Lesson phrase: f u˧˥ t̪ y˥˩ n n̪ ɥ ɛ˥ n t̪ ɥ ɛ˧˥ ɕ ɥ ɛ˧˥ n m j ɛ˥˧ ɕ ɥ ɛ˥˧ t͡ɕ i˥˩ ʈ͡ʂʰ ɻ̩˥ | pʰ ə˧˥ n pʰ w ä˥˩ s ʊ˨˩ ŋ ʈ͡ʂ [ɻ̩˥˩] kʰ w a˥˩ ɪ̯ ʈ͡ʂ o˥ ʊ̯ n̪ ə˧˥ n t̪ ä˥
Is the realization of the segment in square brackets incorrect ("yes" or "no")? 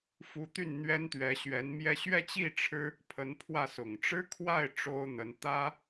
yes